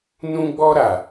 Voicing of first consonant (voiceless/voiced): voiced